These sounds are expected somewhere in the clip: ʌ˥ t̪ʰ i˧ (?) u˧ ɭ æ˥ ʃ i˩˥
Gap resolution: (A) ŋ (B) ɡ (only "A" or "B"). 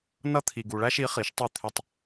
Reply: B